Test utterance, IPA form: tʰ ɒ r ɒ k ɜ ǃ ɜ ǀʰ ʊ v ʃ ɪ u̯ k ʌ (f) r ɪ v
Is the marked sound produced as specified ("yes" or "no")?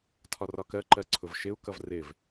no